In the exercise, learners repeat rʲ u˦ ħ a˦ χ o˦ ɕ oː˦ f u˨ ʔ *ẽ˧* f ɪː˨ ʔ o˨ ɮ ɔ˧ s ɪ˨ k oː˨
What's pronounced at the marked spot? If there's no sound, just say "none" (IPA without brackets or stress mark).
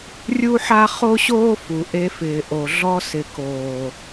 e˧